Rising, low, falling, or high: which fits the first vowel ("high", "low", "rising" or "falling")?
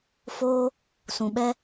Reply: high